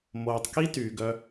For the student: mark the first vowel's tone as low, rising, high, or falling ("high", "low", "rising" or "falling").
low